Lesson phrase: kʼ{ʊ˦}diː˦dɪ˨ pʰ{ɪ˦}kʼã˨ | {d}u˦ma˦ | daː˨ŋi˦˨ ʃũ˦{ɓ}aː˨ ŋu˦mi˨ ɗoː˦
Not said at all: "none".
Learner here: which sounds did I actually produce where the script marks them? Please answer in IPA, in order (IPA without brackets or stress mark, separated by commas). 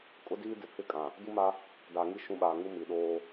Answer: ʊ˦, ɪ˦˨, d, ɓ